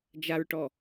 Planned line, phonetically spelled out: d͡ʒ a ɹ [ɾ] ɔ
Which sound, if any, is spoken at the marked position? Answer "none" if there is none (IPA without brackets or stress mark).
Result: ʈ